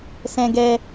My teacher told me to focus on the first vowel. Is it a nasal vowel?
yes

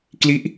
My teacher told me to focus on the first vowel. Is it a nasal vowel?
no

